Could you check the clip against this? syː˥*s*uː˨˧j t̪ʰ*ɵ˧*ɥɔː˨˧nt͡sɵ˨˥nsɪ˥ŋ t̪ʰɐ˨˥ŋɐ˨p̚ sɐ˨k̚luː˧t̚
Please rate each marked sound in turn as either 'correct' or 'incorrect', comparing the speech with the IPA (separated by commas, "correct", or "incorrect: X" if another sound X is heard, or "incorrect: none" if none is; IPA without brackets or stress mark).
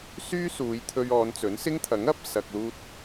correct, correct